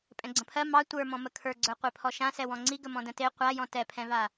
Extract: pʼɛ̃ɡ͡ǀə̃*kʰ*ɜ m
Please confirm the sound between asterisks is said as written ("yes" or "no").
no